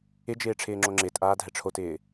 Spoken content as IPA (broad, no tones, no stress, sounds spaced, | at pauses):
ɪ d͡ʒ ɪː ʈ͡ʂʰ ɪː ŋ͡ǁ o ŋ͡ǁ ɪː t ʔ aː dʱ ɛ ʈ͡ʂʰ o t ɪː